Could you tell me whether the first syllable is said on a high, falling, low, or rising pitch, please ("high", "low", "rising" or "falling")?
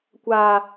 high